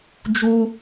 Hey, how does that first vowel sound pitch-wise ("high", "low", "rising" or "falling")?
high